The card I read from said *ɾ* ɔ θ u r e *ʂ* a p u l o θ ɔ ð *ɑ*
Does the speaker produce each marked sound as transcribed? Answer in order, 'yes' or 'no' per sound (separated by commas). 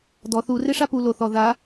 no, yes, no